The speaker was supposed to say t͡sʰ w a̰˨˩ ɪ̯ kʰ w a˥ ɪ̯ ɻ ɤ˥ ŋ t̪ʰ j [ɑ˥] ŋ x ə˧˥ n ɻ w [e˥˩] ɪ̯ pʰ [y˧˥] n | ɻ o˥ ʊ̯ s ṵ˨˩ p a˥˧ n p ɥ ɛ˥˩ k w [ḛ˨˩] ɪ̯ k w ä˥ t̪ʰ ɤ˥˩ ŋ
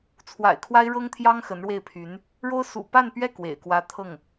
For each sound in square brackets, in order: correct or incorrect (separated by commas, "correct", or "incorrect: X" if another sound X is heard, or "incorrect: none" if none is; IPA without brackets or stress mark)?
correct, correct, correct, correct